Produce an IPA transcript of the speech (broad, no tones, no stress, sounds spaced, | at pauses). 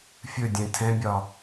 fʲ ɵ dʲ ɛ̃ tʰ ɛ̃ bʲ ɒ